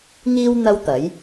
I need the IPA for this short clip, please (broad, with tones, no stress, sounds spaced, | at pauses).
ŋ iː˧ w n̪ ɐ˥ w t̪ ɐ˨˥ j